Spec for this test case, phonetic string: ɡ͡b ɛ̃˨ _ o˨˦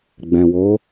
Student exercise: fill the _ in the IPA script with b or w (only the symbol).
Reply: w